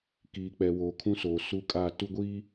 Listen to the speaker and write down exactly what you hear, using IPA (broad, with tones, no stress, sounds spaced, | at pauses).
k iː˨ k͡p ɛ˨ w oː˨ kʰ ũ˦ s oː˨ s u˦ kʼ a˦˨ t u˦ ɡʷ iː˦